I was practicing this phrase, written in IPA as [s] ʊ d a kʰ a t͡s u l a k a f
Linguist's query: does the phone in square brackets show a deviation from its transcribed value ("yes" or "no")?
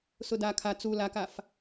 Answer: no